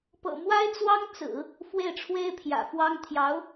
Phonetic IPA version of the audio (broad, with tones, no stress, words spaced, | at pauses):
pɤ̰˨˩mwa˥ɪ̯t͡swɑ˥ŋt͡sɹ̩˨˩˦ | fwe˥˩ɪ̯ʈ͡ʂʰwe˥ɪ̯pʰjä̰˨˩fwɑ˥ŋ t̪ʰjɑ˧˥ʊ̯